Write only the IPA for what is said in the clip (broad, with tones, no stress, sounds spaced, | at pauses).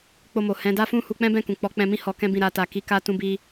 k͡p o˧ m o˨ h ɛ̃˨˦ d a˦ f ũ˦ h u˧ k͡p ɛ̃˦ b ɛ̃˦˨ k ũ˨ k͡p ɔ˨˦ k͡p ɛ̃˧ m ĩ˦ h ɔ˧ k ɛ̃˦ b ĩ˦˨ ɾ a˧ t a˨ k i˨˦ k a˦ t ũ˦ b i˦